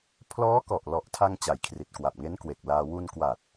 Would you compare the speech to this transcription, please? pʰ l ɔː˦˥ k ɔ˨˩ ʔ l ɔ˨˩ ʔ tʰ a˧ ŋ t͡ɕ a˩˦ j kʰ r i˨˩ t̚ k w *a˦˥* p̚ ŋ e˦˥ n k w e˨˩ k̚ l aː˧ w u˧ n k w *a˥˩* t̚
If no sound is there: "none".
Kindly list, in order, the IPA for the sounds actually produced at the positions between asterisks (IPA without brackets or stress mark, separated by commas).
a˨˩, a˨˩